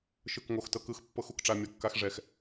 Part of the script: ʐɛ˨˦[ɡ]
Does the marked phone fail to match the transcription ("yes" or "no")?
yes